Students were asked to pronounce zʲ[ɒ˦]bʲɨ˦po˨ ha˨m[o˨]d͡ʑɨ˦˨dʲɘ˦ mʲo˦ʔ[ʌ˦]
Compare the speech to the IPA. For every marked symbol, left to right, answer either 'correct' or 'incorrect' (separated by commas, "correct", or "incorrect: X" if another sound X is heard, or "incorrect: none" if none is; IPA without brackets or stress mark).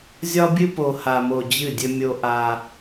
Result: correct, correct, incorrect: a˦